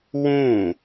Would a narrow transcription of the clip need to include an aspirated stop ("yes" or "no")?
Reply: no